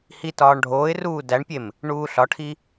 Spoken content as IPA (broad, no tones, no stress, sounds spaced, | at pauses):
h i t ɒː ɳ ɖʱ oː ɪ̯ r uː d æ ɳ pʲ e m | ɳ uː ɬ ɒ ʈʰ i